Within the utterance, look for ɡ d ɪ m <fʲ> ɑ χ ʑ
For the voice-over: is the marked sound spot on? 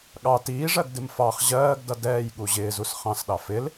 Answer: no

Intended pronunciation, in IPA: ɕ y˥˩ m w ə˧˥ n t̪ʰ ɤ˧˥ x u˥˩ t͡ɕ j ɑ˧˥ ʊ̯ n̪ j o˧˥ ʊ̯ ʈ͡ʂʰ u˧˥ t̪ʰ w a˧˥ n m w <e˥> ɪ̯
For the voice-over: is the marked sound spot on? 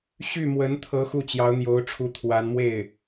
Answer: no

